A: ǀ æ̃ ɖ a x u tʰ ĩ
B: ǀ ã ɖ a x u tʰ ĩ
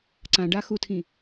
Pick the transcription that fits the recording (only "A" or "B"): B